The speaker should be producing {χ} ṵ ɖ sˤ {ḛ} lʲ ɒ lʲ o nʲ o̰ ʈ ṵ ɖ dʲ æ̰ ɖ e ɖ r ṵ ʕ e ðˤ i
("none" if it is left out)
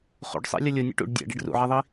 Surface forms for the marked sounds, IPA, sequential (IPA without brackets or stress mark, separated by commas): χ, ḛ